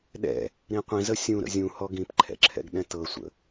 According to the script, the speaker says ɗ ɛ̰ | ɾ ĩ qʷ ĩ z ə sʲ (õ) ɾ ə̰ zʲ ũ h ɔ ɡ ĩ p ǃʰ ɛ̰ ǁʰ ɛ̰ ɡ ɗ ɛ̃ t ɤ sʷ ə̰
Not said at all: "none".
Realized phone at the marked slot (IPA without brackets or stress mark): ũ